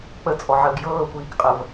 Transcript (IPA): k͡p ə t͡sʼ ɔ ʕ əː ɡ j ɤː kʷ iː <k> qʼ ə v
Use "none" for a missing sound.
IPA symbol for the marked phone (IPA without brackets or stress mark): k